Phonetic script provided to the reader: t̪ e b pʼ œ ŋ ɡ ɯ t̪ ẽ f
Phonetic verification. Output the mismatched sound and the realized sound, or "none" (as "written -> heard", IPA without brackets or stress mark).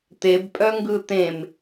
f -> m